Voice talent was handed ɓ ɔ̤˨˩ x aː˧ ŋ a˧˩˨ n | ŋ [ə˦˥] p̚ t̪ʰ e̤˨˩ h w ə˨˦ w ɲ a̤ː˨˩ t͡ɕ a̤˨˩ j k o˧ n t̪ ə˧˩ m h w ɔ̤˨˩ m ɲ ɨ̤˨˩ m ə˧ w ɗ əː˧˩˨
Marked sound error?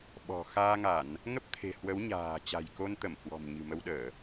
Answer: no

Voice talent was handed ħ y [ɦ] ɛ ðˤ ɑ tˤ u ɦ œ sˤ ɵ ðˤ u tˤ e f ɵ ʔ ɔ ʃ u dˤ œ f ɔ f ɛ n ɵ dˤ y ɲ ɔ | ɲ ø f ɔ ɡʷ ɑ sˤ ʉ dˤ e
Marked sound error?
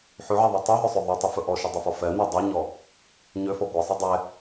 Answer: yes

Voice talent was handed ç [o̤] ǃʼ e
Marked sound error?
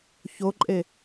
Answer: yes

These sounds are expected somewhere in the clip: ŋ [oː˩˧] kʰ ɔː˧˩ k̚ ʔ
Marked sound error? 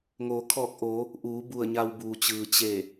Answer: no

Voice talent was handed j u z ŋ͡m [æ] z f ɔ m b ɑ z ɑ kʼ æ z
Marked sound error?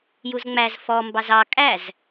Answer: no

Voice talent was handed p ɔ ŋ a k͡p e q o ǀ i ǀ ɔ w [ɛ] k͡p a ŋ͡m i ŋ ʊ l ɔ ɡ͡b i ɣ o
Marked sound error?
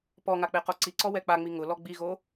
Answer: no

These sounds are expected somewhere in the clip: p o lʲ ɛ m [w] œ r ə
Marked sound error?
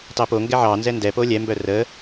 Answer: yes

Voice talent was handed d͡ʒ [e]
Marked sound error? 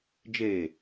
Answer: no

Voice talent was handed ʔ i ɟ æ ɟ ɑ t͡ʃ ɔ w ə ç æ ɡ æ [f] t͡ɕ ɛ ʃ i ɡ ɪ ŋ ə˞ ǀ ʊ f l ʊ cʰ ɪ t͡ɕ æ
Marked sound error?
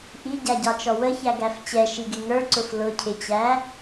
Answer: no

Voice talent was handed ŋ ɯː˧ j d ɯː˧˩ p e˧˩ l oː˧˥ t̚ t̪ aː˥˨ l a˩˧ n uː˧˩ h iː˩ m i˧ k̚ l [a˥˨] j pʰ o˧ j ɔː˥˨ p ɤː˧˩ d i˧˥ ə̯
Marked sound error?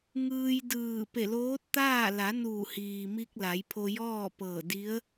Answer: yes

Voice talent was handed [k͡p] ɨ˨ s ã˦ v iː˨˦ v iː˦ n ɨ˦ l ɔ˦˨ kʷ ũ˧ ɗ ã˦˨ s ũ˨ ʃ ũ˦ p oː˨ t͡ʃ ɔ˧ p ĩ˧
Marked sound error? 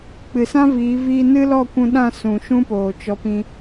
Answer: no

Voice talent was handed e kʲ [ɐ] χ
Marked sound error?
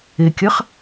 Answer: no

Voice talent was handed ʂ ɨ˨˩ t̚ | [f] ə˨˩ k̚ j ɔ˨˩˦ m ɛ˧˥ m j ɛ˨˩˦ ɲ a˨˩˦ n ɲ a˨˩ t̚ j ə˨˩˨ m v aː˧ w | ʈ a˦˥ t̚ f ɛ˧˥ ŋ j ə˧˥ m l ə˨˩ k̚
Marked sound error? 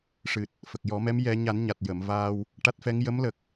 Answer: no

